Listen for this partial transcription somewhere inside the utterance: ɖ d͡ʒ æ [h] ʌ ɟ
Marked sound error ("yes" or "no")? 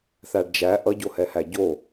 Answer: yes